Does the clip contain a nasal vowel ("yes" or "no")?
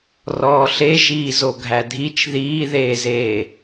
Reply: no